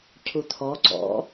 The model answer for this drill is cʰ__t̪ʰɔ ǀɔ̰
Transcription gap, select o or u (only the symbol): u